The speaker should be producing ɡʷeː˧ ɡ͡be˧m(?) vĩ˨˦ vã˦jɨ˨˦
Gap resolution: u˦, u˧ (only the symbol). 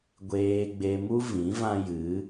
u˦